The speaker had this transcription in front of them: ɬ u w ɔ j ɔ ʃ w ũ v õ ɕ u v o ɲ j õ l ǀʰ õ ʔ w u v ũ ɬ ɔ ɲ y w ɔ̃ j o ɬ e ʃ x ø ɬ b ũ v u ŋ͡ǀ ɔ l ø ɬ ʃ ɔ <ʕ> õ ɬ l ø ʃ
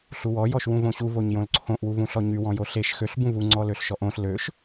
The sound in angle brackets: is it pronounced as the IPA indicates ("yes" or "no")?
no